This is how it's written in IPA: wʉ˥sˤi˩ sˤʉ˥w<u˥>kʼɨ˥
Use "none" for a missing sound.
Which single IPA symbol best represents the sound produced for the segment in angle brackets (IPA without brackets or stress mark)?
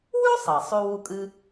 u˥